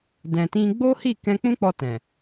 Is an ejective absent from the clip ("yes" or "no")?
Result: yes